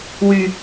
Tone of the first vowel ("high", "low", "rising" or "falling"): low